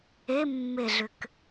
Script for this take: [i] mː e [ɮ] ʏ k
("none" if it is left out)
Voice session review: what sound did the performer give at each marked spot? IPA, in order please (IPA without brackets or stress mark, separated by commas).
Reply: e, ɮ